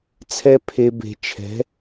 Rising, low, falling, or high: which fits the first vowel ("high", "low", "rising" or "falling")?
high